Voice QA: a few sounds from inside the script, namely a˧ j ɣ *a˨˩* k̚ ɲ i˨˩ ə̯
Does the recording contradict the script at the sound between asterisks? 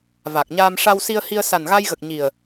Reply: yes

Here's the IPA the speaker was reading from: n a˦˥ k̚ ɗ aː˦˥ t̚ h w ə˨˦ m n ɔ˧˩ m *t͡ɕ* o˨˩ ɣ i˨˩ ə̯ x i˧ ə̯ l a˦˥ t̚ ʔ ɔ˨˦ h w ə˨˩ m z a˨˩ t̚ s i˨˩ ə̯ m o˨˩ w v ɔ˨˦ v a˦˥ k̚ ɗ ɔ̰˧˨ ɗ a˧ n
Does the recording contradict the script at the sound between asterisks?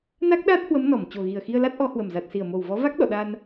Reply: no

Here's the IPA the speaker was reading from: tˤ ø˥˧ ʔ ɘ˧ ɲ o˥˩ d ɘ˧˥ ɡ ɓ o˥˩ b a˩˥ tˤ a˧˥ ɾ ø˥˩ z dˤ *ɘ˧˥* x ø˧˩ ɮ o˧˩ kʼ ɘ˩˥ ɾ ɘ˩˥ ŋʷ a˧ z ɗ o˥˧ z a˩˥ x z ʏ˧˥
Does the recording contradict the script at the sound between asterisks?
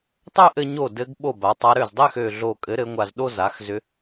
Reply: yes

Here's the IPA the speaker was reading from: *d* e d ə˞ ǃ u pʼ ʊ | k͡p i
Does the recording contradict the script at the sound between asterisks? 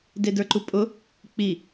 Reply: no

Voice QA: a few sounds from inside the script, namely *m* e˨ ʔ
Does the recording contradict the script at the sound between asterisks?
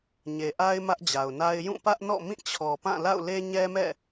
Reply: yes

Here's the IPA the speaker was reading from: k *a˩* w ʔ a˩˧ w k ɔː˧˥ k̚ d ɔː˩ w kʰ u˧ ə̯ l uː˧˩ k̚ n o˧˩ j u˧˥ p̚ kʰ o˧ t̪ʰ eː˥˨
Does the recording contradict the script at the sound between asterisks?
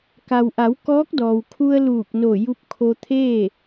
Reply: no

